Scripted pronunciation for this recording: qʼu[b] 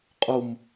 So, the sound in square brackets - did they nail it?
no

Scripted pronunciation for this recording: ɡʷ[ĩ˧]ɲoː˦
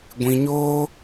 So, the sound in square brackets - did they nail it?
yes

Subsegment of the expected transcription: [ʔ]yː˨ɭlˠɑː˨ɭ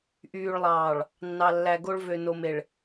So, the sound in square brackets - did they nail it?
yes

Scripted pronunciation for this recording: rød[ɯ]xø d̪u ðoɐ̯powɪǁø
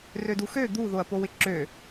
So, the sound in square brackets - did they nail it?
no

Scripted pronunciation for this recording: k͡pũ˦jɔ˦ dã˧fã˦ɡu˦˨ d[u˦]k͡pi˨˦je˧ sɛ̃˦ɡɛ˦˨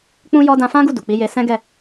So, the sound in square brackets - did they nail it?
no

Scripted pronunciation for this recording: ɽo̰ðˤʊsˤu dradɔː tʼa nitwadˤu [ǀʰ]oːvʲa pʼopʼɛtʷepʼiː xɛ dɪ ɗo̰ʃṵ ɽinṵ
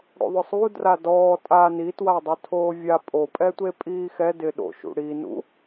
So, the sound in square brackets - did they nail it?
no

